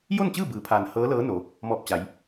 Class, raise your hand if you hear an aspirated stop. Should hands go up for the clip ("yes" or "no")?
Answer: yes